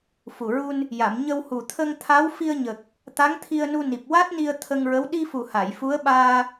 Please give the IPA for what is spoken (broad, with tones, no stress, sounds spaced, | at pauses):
f u˨˩ ɹ u˧ n | j a˨˩˨ m ɲ ə˧ w h u˨˩ t̪ʰ ə˧ ŋ t̪ʰ a˧˥ w f i˧ ə̯ ɲ ə˨˩ k̚ | t̪ a˧˥ ŋ t̪ʰ i˧ ə̯ n u˧ n i˨˩ p̚ w a˦˥ t̚ n i˧ ə̯ t̪ʰ ə˧ ŋ ɹ ə˧˥ w ɗ i˧ f u˨˩ h a˨˩˨ j f u˧˥ ə̯ ɓ aː˧